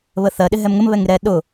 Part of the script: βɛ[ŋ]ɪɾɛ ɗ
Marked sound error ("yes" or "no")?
no